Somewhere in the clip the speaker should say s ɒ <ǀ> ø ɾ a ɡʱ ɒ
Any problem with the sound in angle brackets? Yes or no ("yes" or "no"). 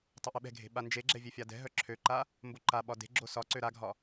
no